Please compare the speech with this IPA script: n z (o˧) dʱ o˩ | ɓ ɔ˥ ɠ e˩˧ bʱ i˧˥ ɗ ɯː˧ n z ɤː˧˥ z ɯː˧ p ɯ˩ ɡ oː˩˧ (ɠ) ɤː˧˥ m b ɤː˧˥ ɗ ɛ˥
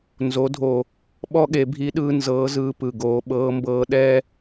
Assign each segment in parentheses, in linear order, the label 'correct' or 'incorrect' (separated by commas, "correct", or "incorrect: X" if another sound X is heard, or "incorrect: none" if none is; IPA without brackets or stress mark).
incorrect: o˩˧, incorrect: ɓ